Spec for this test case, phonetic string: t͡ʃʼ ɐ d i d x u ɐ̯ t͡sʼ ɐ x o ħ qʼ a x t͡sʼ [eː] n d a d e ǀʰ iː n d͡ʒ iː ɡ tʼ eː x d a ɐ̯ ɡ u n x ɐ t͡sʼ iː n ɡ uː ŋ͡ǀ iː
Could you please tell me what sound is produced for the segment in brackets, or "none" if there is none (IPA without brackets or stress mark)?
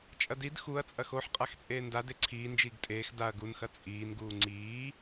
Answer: eː